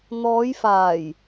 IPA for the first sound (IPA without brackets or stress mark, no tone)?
n̪